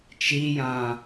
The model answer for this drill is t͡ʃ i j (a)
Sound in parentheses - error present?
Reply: yes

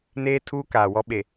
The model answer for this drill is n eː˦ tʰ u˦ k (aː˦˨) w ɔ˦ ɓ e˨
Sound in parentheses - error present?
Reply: yes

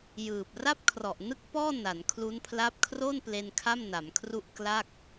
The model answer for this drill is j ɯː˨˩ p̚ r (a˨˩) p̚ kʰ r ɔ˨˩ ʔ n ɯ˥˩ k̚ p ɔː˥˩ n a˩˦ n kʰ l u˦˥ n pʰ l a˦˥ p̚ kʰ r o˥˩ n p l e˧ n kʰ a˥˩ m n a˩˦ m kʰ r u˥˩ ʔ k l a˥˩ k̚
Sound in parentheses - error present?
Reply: yes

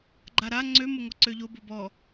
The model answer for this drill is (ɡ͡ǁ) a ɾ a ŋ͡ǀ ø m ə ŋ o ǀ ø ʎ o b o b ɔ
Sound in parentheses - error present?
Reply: yes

